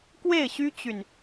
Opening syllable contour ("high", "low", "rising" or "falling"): falling